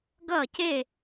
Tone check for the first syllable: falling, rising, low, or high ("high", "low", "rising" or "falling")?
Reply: falling